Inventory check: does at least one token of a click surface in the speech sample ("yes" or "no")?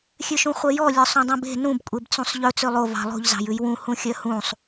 no